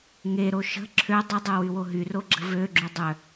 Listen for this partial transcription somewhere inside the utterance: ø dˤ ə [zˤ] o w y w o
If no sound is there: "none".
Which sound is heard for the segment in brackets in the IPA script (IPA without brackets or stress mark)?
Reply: dˤ